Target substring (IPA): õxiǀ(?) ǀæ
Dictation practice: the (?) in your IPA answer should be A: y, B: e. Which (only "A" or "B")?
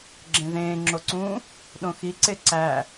B